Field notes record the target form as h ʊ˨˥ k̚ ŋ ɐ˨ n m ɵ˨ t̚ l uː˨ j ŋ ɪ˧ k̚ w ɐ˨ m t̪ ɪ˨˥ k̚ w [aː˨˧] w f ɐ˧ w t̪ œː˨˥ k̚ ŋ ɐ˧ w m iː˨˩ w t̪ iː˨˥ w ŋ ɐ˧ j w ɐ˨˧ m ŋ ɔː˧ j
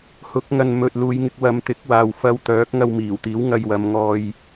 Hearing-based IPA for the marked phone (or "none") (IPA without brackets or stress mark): aː˨